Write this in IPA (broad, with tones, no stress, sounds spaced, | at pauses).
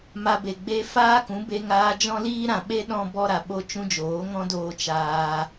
m a˧ b e˨ ɡ͡b e˦ f aː˦ k ũ˨˦ b e˧ ŋ aː˧ d͡ʒ ɔ̃˦ l iː˦ ɾ ã˨ ɓ e˦ ɗ ɔ̃˦ b ɔ˦ ɾ a˨ ɓ o˦ t͡ʃ ũ˦ d͡ʒ oː˨˦ ŋ ɔ̃˦ d oː˧ t͡ʃ aː˧